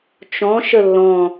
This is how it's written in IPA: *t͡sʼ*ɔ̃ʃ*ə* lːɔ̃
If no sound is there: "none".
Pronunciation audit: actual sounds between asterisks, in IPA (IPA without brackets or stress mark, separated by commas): t͡ʃ, ə